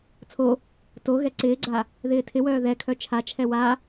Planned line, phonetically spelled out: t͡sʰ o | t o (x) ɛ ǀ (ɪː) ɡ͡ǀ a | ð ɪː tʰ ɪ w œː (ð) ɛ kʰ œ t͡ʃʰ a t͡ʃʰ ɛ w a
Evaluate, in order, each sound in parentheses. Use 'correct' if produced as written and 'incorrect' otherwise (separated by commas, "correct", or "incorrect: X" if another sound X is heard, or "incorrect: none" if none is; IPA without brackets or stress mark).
incorrect: ɣ, correct, correct